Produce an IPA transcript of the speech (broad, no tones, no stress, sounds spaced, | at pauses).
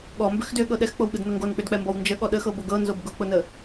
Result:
ɠ ɔ m b ʏ x d ʏ ɠ ɤ ɗ ɛ x k͡p o w ɠ ɯ d n ʊ ŋ ɡ o n k͡p ʏ d k͡p ɛ m b ɔ w n d͡ʒ ə ɠ ɔ ɗ ə x ɤ b o ɡ ɤ n z o b ɡ ʊ k͡p ʊ n ə